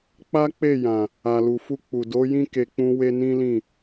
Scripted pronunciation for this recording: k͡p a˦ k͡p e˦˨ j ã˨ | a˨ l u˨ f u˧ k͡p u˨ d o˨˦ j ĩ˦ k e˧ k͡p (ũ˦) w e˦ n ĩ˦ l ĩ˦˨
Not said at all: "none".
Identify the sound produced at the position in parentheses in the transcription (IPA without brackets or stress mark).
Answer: ũ˦